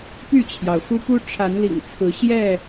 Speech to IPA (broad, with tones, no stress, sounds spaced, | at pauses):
p y˥˨ t͡ɕʰ j ɑ˩ ʊ̯ x u˦ p u˦ ʈ͡ʂʰ a˨˦ n l ḭ˨˩ ŋ t͡sʰ ɹ̩˨˦ ɕ j ɛ˥˨